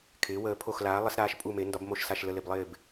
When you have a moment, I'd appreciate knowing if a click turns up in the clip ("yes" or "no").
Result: no